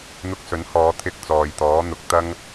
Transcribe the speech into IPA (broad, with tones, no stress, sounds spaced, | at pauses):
n̪ ʊ˧ k̚ s ɵ˨˥ n h ɔː˨˧ t̪ʰ ɪ˧ k̚ t͡s ɔː˨ j t̪ ɔː˨˥ n̪ ʊ˨˥ k̚ t̪ ɐ˥ ŋ